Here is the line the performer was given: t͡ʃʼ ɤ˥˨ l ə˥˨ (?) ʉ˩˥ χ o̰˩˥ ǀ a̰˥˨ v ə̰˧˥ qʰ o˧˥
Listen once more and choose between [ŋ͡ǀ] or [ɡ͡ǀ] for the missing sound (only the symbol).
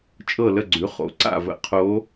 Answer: ɡ͡ǀ